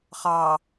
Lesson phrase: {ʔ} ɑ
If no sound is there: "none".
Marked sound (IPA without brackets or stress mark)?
χ